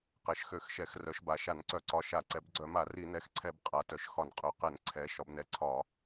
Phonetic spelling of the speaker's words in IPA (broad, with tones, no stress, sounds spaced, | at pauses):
q ɛ˩˧ ʃ x ø˧˩˧ x ʃ ɛ˧˩˧ x r œ˩˧ ʃ b a˩˧ ʃ a˧˩˧ n ǀ œ˧˩˧ ǀ ɒ˩˧˩ ʃ a˧˩˧ ǀ ɛ˩˧ b ɡ͡ǀ œ˧˩˧ m a˧˩˧ r i˧˩˧ n ɛ˩˧˩ x ǀʰ ɛ˧˩˧ b qʼ a˩˧ t œ˩˧ ʃ x ɒ˧˩˧ n qʼ œ˩˧˩ q ɛ˧˩˧ n ǀʰ ɛ˩˧ ʃ ɒ˩˧ b n ɛ˩˧˩ ǀʰ ɒ˧˩˧